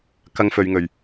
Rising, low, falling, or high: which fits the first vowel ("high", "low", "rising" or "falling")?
high